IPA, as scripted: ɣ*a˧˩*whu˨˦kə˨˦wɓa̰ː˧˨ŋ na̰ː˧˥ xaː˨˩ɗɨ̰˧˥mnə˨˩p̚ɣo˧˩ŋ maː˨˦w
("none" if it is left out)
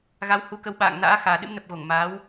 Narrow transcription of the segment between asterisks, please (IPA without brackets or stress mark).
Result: a˨˦